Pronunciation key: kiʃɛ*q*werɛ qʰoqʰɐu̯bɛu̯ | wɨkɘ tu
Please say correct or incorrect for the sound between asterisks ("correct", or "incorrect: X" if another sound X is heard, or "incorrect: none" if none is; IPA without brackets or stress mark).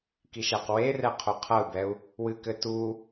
correct